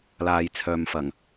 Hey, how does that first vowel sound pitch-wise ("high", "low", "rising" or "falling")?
low